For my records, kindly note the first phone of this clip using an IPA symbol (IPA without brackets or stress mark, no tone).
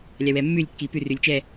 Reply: lʲ